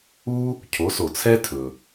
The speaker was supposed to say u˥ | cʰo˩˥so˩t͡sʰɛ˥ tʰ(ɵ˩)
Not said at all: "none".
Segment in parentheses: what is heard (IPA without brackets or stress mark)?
ɵ˩